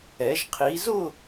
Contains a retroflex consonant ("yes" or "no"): no